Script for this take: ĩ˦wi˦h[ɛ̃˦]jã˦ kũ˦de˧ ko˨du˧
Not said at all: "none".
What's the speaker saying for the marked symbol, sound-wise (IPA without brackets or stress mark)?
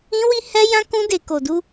ɛ˦